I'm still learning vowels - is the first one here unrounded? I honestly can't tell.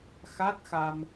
yes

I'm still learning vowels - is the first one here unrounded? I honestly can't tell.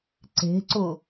yes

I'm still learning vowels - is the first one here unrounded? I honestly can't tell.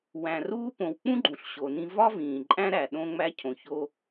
yes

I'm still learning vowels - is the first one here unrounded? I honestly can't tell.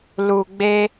no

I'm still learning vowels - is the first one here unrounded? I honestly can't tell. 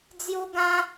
no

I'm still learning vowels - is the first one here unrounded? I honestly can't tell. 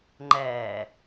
yes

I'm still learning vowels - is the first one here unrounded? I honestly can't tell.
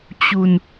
no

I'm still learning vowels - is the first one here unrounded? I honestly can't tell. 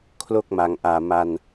no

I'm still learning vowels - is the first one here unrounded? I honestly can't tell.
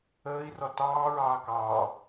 yes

